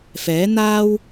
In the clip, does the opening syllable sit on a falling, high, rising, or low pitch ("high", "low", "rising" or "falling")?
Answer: rising